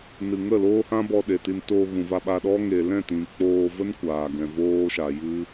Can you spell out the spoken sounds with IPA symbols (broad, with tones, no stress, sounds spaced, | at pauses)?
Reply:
n ɨ˨ ŋ ə˦˨ l oː˦ h ã˦ b ɔ˧ ɗ e˨ t i˧ n t oː˧ ɣ ũ˨ v a˧ ɓ a˧ ɗ ɔ˦ ŋ e˨ l ɛ̃˦˨ t ĩ˨ k͡p oː˧ v ə˦ n kʷ aː˨ ɡ ɛ̃˨ v oː˦ ʃ a˨ j ɨ˦